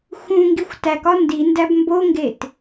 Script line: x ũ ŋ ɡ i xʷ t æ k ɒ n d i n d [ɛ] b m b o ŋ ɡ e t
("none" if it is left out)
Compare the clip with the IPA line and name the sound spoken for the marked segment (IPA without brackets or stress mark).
æ